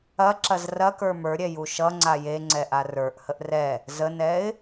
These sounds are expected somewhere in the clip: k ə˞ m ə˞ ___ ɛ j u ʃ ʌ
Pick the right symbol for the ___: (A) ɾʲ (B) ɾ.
A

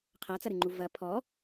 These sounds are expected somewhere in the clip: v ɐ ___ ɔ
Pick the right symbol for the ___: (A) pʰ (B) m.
A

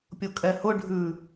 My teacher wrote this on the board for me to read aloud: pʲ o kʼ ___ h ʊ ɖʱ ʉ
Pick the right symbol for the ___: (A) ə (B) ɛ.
B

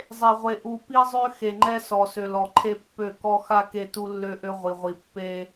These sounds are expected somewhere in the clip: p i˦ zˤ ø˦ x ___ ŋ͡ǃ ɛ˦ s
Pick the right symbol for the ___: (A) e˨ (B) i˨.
A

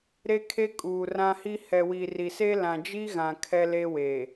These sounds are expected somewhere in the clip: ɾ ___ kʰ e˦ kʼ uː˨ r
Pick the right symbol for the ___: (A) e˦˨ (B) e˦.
B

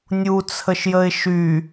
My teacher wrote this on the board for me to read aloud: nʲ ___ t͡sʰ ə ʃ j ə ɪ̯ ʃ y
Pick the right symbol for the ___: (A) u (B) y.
A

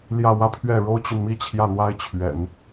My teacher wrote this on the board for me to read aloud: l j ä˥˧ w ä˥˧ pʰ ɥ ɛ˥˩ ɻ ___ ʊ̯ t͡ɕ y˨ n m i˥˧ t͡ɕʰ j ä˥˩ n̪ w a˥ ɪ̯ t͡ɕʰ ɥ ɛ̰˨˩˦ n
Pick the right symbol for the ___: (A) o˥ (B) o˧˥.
A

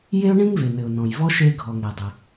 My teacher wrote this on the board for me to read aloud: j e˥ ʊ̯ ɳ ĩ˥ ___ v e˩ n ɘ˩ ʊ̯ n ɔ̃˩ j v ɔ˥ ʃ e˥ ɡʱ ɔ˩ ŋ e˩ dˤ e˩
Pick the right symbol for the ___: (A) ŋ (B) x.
A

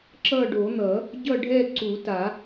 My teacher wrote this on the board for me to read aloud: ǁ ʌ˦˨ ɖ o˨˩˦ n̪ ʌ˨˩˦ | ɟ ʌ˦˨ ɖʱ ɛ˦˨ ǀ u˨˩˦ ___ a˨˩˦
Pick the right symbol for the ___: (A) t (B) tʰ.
A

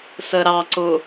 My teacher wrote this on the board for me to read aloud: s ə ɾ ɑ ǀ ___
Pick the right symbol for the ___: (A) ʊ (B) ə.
A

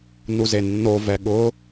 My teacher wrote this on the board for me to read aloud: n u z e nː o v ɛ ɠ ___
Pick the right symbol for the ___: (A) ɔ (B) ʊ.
B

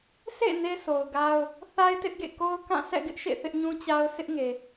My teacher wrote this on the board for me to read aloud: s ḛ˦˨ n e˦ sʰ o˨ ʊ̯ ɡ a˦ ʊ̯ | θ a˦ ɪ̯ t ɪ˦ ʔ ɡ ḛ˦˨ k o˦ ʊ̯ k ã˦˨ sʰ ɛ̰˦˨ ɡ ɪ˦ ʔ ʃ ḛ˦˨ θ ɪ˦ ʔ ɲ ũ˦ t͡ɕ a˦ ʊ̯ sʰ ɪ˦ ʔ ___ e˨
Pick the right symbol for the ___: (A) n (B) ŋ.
B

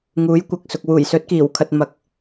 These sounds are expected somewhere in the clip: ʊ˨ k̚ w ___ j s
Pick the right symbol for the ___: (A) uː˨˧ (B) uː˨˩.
B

